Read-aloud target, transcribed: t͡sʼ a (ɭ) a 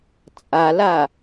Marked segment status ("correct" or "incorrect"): incorrect